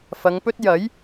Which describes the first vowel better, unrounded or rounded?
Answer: unrounded